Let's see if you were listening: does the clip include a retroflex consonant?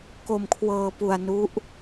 no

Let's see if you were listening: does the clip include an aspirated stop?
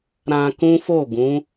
no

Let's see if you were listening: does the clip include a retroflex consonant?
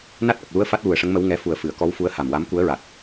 yes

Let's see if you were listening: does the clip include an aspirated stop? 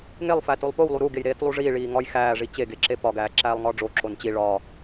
no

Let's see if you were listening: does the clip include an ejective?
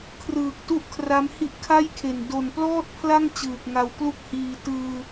no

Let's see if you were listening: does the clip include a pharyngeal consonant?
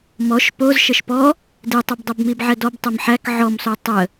yes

